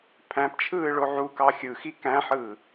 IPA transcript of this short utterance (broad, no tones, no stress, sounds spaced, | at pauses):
pʰ æ̃ p t͡ʃʰ ɯː ɭ o ʕ u k ɑ xʲ ɯ x i k æ̃ ħ ɯː